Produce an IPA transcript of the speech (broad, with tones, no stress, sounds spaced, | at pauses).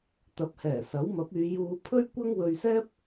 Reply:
t̪ ɐ˨˥ p̚ h ɛː˨˩ s ɐ˨˥ w m ɐ˨˥ p̚ yː˨˧ j uː˧ pʰ ɵ˥ ɥ kʷ ɐ˥ ŋ w ɵ˧ ɥ s ɛː˥ p̚